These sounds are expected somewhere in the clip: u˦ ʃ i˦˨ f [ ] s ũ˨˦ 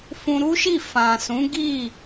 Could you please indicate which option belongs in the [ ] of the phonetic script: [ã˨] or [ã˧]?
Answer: ã˨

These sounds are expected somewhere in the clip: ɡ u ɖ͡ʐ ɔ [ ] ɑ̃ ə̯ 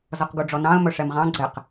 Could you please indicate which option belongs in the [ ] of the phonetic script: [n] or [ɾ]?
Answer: n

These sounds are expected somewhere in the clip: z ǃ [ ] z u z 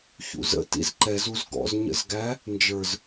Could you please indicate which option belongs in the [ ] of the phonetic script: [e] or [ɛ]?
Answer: ɛ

